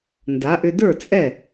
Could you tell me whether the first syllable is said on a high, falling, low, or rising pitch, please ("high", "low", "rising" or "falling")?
rising